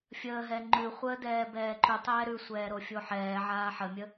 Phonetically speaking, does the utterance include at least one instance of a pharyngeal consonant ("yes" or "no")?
yes